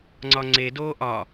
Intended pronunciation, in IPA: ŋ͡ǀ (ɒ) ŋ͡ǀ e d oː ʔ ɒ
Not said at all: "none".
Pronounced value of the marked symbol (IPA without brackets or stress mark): ɒ